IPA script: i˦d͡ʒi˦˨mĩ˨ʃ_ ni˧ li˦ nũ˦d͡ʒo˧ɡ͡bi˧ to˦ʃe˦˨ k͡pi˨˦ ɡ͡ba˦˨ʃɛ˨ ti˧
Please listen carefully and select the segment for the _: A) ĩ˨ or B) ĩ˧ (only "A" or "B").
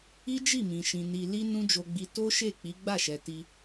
A